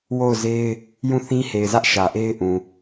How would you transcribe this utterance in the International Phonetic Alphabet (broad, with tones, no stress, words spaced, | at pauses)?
wo˦˨ʊ̯ze˦ɪ̯ | jũ˦˨θĩ˦he˨ɪ̯zä˦ʔ ʃä˨ʔe˦ɪ̯ ʔũ˨